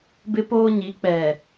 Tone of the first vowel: high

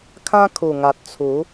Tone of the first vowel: high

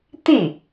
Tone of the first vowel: falling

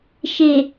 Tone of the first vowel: low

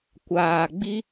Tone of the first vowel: low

